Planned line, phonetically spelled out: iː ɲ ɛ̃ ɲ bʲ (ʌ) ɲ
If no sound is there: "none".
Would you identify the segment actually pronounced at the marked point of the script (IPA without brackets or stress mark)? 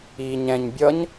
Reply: ʌ